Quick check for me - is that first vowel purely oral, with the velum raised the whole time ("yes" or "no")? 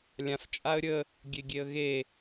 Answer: no